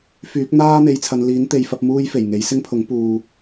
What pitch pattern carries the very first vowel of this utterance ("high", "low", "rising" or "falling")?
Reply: rising